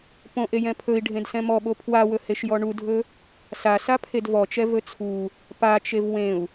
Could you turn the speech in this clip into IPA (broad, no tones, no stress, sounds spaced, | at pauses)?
p õ ʔ e j ɛ̃ pʰ ɵ i̯ ɖʱ ẽ d s ɛ̃ m ɔ ɓ o pʰ w a w ɵ h e ʃ j ɔ ɳ u dʱ ɵ | s a s a pʰ e d v ɔ t͡ʃ ɛ v ɵ t͡sʰ u | p a t͡ʃ e v w ẽ u̯